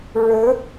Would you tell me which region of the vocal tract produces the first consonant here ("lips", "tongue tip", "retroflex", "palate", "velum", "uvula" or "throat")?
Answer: retroflex